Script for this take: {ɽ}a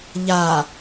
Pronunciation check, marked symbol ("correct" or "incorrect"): incorrect